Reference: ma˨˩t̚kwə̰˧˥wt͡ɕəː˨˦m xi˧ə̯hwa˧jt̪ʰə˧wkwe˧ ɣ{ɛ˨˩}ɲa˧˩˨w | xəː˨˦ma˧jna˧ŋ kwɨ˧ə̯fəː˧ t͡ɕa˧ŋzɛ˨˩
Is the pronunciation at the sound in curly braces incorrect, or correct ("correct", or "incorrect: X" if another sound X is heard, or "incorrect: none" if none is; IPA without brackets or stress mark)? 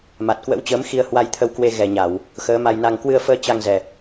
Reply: correct